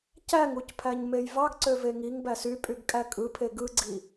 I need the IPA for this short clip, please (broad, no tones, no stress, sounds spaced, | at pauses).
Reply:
c æ ŋ u c pʰ æ ɲ m e j v ɑ ɡ ǀ ø v e ŋ i ŋ b æ s y pʼ y ɡ kʼ æ kʼ ɯ pʰ e ɡ ɯ ɡ͡ǀ i